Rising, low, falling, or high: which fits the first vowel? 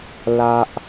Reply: high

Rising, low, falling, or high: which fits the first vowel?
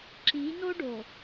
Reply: rising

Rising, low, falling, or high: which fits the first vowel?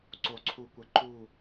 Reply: low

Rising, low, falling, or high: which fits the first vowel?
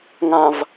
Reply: low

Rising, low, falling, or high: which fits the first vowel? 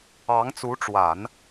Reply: rising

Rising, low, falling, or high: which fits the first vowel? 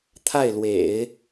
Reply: falling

